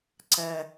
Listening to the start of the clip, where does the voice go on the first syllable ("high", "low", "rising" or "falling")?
low